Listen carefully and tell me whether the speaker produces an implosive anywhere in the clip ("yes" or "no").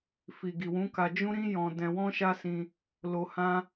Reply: no